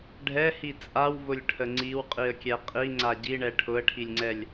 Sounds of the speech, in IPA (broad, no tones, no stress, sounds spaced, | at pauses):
ɖʱ ɛ h i t͡sʼ a w v ʊ lʲ ʈʰ ə ŋ͡ǀ i w qʼ i ə̯ kʲ ɛ qʼ i ŋ͡ǀ a ɟ i ɳ ɛ ʈʰ ʊ ə̯ ʈʰ i lʲ ŋ͡ǀ ɛ lʲ